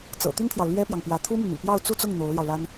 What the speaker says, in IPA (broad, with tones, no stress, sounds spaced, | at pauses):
t͡s ɤ̰˨˩ t̪ y˥ n t̪ʰ j ɑ˨ ʊ̯ l ɥ ɛ˥ p j ɑ˨ ŋ p j ä˧˥ t̪ʰ u˥ m y˨ n̪ y̰˨˩ p j ɑ˥˧ ʊ̯ t͡s u˥˧ t͡s ʊ˥˩ ŋ n̪ o˧˥ ʊ̯ l j ɑ˧ ʊ̯ l a˥ n